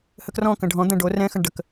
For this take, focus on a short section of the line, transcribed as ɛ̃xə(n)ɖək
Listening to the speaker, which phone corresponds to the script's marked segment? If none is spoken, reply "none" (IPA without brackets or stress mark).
ɳ